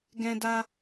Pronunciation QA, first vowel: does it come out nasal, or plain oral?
nasal